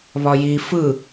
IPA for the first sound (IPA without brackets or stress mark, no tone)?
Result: β